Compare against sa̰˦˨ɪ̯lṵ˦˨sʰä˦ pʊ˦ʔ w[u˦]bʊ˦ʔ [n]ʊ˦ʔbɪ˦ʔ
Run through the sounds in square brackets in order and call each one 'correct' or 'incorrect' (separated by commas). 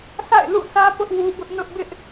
correct, correct